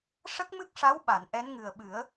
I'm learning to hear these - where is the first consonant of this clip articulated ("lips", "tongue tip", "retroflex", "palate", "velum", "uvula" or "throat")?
retroflex